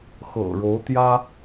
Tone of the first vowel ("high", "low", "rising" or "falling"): low